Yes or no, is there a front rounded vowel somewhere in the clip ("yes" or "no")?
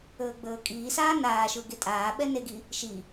no